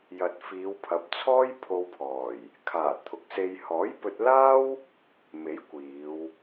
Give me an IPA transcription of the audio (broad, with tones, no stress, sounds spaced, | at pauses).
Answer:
j ɐ˨ t̚ f iː˨˧ w pʰ ɐ˨˥ p̚ t͡sʰ ɔː˥ j pʰ o˧ w pʰ ɔː˨˩ j | kʰ aː˨˩ t̪ʰ ʊ˨˥ k̚ s e˧ j h ɔː˨˥ j p ɵ˧ t̚ l aː˥ w | m e˨˥ j kʷ iː˨˧ w